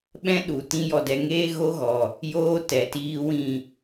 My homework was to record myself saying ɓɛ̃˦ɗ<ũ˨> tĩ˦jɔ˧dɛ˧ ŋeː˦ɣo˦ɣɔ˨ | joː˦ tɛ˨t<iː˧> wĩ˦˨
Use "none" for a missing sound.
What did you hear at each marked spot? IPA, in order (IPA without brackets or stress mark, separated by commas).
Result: u˨, iː˧